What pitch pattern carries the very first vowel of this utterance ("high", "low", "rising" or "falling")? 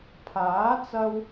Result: rising